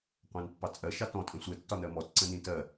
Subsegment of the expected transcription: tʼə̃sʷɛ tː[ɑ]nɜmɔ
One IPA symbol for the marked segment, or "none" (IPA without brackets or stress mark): ɒ